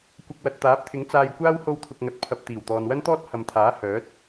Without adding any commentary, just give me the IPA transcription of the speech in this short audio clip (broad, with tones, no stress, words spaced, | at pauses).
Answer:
kʷɐ˧k̚ wɐ˨t̚t̪aː˨˥p̚t̪ʰɪ˨˥ŋ t͡saː˧jkʷaː˥w ho˧wt̪ʰʊ˨k̚ŋɐ˨˥t̚ pʰɐ˨p̚ t̪iː˨˩wt̪ɔː˨nwɐ˥nt̪ɔː˥t̚ hɐ˨m t̪ʰaː˨˥hœː˨˥t̚